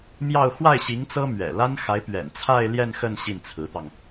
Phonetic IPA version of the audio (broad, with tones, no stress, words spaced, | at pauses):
mjɑ˥˧ʊ̯ xwa˥˩ɪ̯ɕi˧˥ŋ t͡sɤ˥mɥɛ̰˨˩ la˥nxa˧˥ɪ̯ pɥɛ̰˨˩nt͡sʰa˥˧ɪ̯ljɛ˥˧n xə˥˧n ɕi˥˩nt͡sʰɹ̩˧˥t̪ɑ˧ŋ